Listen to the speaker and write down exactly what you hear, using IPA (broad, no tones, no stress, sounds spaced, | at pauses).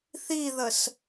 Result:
θ i ð ə s